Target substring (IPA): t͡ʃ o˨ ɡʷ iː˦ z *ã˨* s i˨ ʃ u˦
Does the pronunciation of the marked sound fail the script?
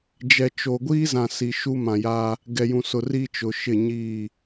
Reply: no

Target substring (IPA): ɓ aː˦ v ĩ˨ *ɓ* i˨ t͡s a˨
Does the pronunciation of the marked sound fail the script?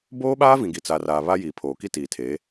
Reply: yes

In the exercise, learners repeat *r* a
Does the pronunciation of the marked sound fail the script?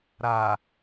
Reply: yes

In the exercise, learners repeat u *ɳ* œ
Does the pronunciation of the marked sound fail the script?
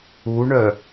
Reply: no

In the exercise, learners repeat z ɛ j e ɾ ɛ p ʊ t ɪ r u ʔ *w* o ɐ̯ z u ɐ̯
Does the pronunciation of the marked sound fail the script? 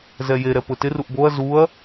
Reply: yes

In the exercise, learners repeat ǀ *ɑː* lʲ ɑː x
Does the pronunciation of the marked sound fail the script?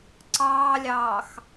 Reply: no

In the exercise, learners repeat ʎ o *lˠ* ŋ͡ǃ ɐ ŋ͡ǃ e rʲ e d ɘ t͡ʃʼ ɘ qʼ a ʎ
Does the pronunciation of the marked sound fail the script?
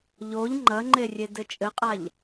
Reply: yes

